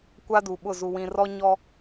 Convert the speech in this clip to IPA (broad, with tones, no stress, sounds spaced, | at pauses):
kʷ a˦ d u˨ ɓ ʊ˦˨ z u˨ w ĩ˨ r ɔ˦ ɲ ɔ˦